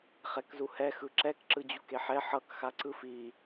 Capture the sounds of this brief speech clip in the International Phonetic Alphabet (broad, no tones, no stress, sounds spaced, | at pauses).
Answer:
χ ɛ k z u h ɛ x ɯ ǁ ɛ k ǁ ɯ d͡ʑ u k e ħ ɛ ħ ʌ k x a ǀ ɯ f i